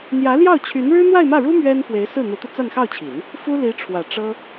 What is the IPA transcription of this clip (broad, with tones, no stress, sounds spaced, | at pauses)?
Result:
n̪ j ä˧˥ l j ɑ˥˩ ʊ̯ t͡ɕʰ y˧˥ n ɻ ɻ̩˥ n̪ w a˥˧ ɪ̯ m ä˥˩ ɻ u˥ m ɥ ɛ˥ n f w e˧˥ ɪ̯ s ɹ̩˥˩ n̪ u˧˥ t̪ u˧ t͡s a˥˧ n x ɑ˥˩ ʊ̯ t͡ɕʰ i˨˩˦ n | f u˥ l i˧˥ ʈ͡ʂʰ w ä˨˩ ʈ͡ʂ ɤ˥